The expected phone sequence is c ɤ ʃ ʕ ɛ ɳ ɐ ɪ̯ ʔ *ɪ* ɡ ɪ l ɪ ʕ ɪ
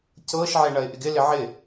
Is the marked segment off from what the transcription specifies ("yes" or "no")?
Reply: no